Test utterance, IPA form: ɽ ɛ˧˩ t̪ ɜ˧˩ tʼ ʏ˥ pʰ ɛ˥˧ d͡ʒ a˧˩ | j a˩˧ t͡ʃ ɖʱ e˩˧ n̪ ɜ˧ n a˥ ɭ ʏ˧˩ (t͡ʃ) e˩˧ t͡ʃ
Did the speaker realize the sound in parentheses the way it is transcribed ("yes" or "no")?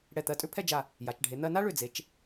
no